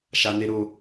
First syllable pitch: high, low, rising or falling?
high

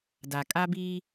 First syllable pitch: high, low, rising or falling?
low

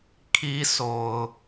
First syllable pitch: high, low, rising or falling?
high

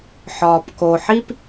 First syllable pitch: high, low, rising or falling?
low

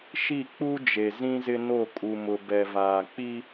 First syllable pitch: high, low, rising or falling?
falling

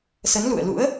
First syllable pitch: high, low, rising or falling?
rising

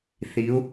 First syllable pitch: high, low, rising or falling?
rising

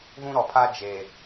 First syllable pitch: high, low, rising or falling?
high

